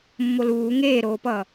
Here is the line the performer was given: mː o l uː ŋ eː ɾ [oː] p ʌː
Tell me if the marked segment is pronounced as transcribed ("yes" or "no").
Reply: yes